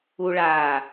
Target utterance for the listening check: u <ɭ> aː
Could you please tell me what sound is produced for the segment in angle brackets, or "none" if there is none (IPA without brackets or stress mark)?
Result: ɭ